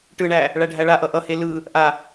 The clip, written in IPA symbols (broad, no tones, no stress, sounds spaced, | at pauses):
ʈ ɯ ɳ æ | ɭ æ ɖʱ æ ɭ a ʔ ʌ ʔ ʌ h e l ɯ | ʔ a